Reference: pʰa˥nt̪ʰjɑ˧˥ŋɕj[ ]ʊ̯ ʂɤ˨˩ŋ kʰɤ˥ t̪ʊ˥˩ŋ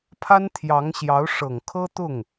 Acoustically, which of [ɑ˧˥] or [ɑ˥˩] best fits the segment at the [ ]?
ɑ˧˥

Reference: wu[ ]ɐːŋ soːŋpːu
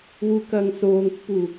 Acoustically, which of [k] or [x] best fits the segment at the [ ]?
k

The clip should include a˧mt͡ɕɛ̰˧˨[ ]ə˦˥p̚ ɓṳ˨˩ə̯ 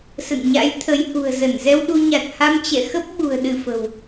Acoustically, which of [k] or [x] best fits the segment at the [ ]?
x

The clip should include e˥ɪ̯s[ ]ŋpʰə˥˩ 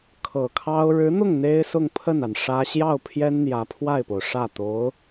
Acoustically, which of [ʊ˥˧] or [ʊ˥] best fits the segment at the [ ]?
ʊ˥˧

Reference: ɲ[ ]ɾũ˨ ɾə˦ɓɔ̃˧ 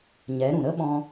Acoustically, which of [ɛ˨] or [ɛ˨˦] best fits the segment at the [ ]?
ɛ˨˦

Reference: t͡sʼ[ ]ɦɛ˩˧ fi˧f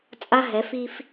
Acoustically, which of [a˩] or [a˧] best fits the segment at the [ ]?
a˧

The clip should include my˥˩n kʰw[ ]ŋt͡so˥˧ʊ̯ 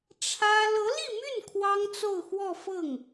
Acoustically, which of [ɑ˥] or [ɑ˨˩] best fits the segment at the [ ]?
ɑ˥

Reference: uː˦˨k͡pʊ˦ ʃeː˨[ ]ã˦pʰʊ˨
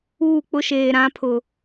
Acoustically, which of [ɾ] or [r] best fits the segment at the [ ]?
ɾ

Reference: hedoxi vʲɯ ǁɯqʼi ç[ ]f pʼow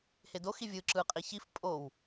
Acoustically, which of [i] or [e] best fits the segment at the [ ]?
i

